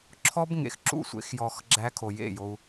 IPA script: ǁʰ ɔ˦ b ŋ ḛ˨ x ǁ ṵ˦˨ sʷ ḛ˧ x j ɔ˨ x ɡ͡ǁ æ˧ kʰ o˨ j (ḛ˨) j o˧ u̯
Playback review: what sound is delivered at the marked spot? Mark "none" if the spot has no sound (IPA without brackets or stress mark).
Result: ḛ˦˨